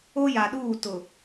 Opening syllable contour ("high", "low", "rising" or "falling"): high